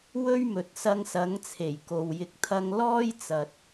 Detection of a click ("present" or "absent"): absent